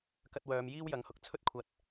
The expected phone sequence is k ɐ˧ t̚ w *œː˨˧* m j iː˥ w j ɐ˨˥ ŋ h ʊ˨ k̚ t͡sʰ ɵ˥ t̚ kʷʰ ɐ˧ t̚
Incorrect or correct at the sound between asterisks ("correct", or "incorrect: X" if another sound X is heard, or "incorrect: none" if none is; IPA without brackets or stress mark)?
correct